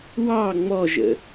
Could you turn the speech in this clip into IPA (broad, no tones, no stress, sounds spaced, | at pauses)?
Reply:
w ɑ ŋ͡m ɔ ʒ ə̰